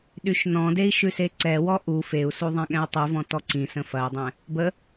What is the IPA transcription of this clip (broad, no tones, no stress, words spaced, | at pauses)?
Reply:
ɗyʃnɔ̃dei̯ ʃʉseǀɛwɔ ʔu feu̯su ðˤɛ̃ɠɛ̃i̯tˤʉvɔ̃ tɔǀĩsə̃ fɐi̯dˤɛ̃ | bə